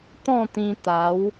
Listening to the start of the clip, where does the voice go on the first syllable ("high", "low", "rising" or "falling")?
falling